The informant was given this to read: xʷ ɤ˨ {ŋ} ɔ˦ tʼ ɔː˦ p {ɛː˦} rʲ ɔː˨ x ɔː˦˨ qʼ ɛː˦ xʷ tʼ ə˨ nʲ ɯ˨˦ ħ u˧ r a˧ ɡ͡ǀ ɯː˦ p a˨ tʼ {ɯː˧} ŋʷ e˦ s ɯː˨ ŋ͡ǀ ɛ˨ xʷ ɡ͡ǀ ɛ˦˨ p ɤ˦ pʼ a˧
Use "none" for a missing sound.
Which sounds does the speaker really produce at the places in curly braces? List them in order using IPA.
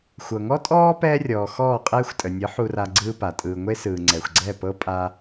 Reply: ŋ, ɛː˦, ɯː˧

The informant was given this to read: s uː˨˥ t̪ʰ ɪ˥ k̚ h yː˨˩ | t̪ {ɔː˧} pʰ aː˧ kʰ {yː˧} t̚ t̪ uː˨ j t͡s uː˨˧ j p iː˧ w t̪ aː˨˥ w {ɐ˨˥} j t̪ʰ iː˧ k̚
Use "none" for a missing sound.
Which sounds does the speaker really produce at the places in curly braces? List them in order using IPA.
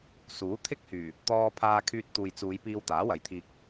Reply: ɔː˧, yː˧, ɐ˨˥

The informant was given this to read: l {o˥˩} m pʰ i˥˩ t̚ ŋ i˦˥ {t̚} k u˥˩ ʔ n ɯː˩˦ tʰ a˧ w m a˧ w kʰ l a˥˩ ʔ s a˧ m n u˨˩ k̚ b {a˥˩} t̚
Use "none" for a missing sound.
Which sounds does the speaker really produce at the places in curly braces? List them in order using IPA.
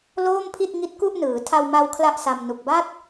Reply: oː˥˩, t̚, a˥˩

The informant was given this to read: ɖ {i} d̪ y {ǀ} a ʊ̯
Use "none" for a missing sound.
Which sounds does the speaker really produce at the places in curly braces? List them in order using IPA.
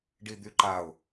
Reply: i, ǃ

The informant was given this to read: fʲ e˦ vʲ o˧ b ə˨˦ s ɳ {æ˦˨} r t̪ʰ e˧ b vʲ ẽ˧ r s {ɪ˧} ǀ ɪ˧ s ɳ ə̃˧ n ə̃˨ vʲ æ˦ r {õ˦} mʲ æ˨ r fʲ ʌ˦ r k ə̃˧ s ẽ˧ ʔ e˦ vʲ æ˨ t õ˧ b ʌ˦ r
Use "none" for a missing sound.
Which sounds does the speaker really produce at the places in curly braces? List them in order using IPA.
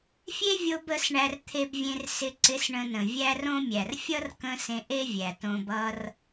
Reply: æ˧, ɪ˧, õ˦

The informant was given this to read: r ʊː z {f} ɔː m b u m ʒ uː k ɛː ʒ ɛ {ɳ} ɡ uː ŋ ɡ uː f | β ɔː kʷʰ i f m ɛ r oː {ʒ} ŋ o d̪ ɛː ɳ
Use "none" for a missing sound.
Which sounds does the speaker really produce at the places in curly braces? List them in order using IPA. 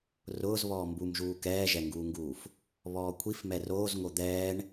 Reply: β, ŋ, z

